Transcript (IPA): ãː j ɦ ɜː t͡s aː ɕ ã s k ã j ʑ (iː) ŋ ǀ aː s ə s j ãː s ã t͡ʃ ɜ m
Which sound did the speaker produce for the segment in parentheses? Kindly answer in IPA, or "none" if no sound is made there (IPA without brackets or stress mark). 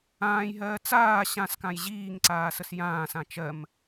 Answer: iː